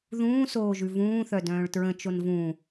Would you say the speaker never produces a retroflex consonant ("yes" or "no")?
no